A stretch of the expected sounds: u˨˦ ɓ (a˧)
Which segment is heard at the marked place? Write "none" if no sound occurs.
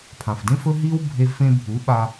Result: a˧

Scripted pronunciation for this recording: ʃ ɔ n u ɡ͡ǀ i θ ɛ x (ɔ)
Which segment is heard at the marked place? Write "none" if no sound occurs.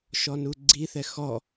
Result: ɔ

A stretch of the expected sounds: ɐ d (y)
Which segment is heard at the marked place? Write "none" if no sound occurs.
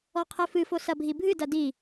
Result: i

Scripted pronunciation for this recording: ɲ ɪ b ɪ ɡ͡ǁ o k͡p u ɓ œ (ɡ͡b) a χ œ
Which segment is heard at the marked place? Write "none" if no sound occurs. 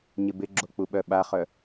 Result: ɓ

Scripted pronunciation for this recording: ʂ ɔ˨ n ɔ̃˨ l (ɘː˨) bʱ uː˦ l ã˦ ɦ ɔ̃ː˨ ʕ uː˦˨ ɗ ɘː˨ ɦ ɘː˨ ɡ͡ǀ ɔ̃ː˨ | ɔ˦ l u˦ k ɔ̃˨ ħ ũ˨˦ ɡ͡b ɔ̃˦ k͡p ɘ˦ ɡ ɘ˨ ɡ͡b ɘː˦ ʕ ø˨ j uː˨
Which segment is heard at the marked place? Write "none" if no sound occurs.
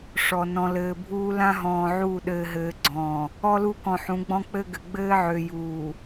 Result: ɘː˨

